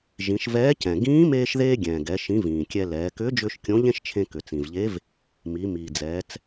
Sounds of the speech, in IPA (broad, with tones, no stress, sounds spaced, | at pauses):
ʒ ĩ˩˧ ʃ v ɛː˧˥ c ɛ̃˩ ɡ ĩː˧˥ m eː˧ ʃ ð eː˧ ɡʲ ɛ̃ː˩ ɡ ɛ˩˧ ʃ ĩ˩˧ v ĩː˩ kʲ ɛ˧ l ɛː˩˧ k ʏː˧˥ d͡ʒ ʏː˧ ʃ kʲ õ˧˥ ʎ ẽ˥ ʃ t͡ʃʰ ẽ˧ k ʏ˩ t͡s ĩ˩ v ʎ e˧˥ v | m i˩˧ m iː˩ d͡z ɛː˩˧ t͡s